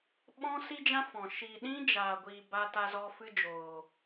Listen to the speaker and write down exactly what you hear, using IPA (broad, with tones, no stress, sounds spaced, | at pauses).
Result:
ɓ ɔ̃˦ s i˦ d͡ʒ ã˦ f ɔ̃˨ ʃ i˨ ɗ ĩ˦ d͡ʒ aː˨ ɡʷ iː˨ b a˧ t a˧ z ɔ˧ f ɨ˦ d͡ʒ oː˨